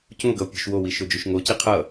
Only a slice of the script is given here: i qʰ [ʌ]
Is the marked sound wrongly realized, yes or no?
no